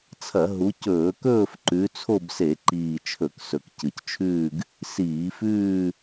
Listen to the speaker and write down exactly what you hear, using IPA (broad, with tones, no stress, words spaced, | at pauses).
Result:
t͡sʰɐ˧˩˧ɦu˨˦ cɵː˧˩˧kɵː˥˧f ǃʉ˨˦t͡sʰo˥˧b se˧˩˧ǃiː˨˩ t͡ʃʰɵ˧˩˧ksɵ˨˩kcɨ˨˩ct͡ʃʰʉː˥˧ɡ | siː˧˩˧fʉː˥˧